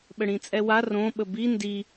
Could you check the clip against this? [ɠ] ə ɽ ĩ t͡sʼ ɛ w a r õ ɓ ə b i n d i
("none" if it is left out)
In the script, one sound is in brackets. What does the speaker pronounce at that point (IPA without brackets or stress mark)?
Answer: ɓ